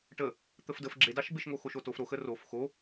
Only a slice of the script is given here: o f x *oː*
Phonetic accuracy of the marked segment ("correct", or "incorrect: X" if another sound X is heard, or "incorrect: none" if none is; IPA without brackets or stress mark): incorrect: o